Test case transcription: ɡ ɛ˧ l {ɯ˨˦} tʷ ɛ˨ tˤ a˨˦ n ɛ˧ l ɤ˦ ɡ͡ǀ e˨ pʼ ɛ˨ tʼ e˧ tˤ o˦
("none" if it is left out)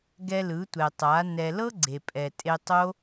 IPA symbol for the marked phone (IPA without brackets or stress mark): ɯ˨˦